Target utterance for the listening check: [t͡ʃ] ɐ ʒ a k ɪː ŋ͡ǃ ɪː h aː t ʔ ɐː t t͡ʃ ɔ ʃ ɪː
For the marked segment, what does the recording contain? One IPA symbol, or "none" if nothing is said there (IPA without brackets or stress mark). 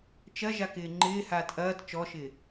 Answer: t͡ʃ